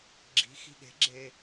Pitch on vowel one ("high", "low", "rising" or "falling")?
rising